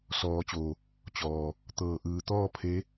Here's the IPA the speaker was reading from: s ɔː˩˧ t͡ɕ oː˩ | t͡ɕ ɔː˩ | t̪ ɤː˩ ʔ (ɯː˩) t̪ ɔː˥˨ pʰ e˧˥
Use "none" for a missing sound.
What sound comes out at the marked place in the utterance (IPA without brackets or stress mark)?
ɯː˩˧